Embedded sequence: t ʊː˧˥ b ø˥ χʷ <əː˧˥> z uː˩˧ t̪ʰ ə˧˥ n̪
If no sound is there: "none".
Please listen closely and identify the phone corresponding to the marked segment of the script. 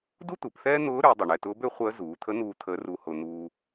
əː˧˥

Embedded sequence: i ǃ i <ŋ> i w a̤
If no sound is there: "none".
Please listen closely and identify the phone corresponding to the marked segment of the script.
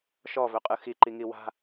ŋ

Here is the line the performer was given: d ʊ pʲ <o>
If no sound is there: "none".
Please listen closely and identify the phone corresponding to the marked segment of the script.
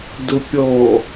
ɔ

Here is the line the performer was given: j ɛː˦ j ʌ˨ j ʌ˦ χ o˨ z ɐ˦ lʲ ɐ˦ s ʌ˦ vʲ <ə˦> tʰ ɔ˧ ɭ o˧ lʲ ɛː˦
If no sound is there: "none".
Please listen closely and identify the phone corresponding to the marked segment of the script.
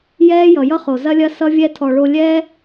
ɛ˦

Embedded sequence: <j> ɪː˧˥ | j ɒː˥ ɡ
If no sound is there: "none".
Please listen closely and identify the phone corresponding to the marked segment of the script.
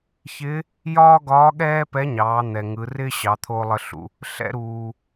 ç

